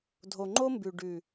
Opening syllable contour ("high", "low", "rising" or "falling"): low